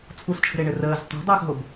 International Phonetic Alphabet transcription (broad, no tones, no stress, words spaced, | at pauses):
t͡sʰust͡ʃʰə̤ɾe ɳɘrəːz tˤo̤dˤəːxɦob